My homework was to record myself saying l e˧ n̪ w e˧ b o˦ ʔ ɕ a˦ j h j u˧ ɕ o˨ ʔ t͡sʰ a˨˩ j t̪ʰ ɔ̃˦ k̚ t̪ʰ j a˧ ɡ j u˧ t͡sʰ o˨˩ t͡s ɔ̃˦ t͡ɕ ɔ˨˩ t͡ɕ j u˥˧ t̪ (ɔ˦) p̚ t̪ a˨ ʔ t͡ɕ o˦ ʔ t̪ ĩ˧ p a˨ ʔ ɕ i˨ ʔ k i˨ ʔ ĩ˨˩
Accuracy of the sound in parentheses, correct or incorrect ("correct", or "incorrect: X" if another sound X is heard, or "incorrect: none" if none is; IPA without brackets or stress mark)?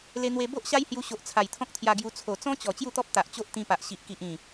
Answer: correct